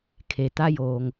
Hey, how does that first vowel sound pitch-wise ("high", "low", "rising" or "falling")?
low